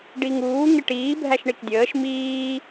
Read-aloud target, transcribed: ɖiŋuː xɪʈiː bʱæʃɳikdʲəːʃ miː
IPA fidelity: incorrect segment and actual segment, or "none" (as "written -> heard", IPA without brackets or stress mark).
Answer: x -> ŋ